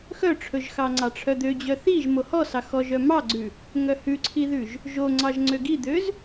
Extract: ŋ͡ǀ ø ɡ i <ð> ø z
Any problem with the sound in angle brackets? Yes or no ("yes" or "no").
yes